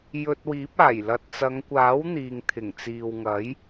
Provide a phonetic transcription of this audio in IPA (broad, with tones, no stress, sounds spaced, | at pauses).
j ɵ˧ t̚ w iː˨˥ p̚ aː˨˩ j l ɐ˨ t̚ t͡s ɐ˨˧ ŋ kʷ aː˨˥ w n̪ iː˨ ŋ t̪ʰ ɪ˨˩ ŋ t͡s iː˨ w ŋ ɐ˨˥ j